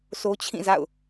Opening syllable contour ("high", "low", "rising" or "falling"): high